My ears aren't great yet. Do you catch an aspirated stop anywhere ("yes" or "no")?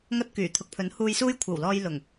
yes